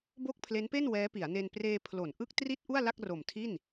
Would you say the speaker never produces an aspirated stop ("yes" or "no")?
no